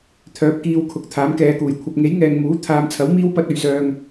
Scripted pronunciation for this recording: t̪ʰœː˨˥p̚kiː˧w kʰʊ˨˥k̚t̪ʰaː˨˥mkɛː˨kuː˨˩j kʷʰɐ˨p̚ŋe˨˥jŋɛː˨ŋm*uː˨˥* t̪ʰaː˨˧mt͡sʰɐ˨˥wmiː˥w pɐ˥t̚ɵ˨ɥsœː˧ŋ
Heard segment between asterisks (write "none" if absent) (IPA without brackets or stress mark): uː˨˥